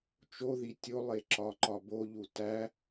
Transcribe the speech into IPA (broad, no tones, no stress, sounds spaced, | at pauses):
t͡ʃ o ð i tʲ o lˠ e ǁ ɒ ǃ ɒ b o ʎ u t æ